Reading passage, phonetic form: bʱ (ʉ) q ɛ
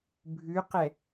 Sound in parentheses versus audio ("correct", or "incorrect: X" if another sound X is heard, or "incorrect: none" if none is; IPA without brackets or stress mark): correct